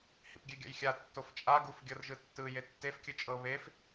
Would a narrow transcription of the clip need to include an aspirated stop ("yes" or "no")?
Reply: no